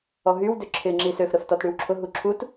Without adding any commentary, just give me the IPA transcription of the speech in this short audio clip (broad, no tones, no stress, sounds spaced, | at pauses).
ɔ ɦ y w d ʏ ǁʰ ɪ ŋ͡ǁ i s ø f ɾ ə f t ɔ t ɽ y w ǁʰ ʊ ɦ u ǁʰ u t